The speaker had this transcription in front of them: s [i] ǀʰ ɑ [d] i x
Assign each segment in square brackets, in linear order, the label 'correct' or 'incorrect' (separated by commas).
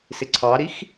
incorrect, incorrect